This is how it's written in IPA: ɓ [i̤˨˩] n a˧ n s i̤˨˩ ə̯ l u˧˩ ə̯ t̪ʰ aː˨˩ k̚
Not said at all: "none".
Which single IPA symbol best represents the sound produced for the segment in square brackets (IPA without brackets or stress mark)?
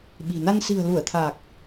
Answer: i̤˨˩